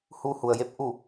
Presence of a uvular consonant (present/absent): absent